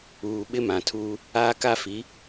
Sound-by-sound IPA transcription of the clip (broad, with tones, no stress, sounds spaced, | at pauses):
uː˨ ɓ ɪ˦ m ã˨ tʰ uː˦ | aː˦ k a˦ f i˨˦